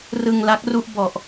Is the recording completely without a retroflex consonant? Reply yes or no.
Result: yes